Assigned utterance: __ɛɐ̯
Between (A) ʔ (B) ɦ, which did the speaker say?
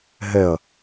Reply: B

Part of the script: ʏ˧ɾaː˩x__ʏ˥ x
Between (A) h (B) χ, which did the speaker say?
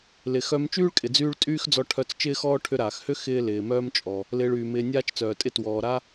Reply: A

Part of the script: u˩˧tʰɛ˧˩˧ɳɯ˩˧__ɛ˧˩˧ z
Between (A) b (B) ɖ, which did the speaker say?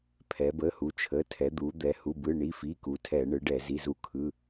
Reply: B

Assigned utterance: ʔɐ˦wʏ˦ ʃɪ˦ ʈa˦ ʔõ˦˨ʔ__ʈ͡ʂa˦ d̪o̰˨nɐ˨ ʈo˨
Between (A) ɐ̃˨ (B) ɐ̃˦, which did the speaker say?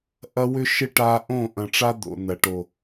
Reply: A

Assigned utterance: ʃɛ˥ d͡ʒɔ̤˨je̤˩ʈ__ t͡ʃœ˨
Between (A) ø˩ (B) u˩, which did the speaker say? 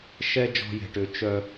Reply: A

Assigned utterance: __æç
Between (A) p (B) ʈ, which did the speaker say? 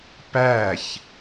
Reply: A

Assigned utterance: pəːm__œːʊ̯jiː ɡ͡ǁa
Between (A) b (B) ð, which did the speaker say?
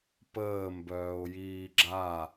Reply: A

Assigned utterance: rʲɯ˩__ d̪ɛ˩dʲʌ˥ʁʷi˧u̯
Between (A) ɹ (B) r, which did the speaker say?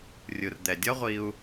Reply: B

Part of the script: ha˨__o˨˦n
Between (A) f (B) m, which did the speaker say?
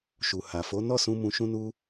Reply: A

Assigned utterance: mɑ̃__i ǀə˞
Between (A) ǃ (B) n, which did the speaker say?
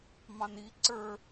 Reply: B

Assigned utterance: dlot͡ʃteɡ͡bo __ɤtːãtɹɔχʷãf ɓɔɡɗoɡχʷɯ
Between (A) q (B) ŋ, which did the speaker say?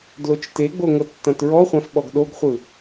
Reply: B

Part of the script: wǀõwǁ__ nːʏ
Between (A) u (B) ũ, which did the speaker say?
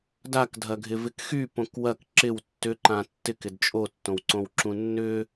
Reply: B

